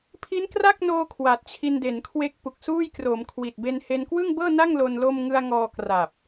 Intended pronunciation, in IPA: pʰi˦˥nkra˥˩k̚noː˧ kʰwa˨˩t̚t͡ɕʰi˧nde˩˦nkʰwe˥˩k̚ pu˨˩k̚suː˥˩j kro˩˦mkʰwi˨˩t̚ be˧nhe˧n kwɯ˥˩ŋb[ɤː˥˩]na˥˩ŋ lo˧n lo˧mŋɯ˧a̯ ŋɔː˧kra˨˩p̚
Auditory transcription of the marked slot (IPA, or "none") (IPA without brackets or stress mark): ɤː˥˩